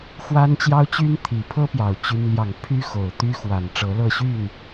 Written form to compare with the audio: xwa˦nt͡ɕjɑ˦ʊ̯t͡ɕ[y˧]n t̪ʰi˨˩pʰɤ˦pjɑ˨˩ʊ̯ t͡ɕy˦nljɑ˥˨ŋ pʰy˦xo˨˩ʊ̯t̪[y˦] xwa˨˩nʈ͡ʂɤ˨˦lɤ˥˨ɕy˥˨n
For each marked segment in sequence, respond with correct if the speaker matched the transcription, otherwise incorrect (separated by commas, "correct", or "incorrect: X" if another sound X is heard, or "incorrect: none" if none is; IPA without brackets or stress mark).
incorrect: y˦, correct